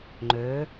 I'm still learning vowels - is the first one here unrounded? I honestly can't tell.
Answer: no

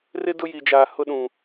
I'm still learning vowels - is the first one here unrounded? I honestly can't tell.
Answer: yes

